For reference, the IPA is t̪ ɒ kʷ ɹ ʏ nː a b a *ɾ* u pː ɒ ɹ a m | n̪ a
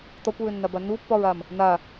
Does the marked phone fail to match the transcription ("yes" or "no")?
yes